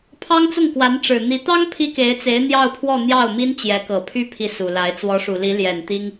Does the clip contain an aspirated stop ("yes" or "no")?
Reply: yes